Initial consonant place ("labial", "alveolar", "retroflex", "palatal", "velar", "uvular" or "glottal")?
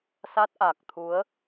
alveolar